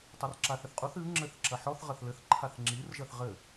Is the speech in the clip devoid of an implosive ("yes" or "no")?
yes